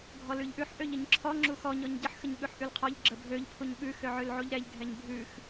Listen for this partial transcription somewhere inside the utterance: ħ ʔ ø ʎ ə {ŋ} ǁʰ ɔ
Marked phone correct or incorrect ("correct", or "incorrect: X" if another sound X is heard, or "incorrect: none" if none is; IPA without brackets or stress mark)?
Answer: incorrect: ɲ